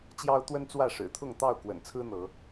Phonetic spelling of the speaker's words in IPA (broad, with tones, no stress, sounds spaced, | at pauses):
t͡ɕ j ɑ˦ ʊ̯ t̪ w ə˦ n t͡s w ä˥˨ ʂ ɻ̩˨˩ t̪ʰ ʊ˥˨ ŋ t̪ ɑ˥˨ ʊ̯ k w ə̰˨˩ n t͡sʰ ɹ̩˦ n̪ ɤ˨˦